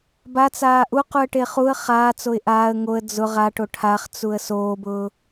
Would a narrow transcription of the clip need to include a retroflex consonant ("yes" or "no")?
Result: yes